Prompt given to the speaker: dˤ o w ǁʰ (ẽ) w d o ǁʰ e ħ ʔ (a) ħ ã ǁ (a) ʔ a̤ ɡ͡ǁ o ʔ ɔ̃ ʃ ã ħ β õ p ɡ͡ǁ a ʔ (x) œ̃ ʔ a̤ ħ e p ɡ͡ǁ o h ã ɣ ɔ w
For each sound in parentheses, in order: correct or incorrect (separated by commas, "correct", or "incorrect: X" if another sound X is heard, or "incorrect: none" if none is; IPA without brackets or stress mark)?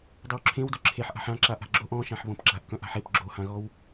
correct, incorrect: a̤, correct, incorrect: k